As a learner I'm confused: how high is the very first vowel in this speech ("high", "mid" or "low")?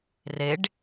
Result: mid